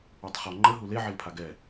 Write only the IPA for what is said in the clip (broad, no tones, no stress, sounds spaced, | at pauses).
u tˤ χ ɒ ŋ͡ǃ ə ɦ u l e ʕ e l pʰ a ɡ ɛ